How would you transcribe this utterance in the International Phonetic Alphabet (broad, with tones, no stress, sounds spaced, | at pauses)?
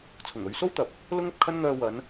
t͡sʰ ʊ˨˩ ŋ ɵ˨˧ ɥ s o˥ w t̪ ɐ˨ p̚ | l ʊ˥ ŋ ɐ˨ p̚ kʰ ɐ˥ n ŋ œː˧ w ɐ˨˧ n